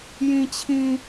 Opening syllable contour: low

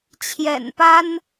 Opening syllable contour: low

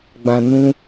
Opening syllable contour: low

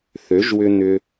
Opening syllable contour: rising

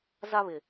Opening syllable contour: high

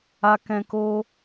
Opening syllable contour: low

